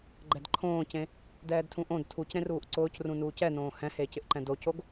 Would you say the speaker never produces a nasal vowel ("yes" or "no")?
no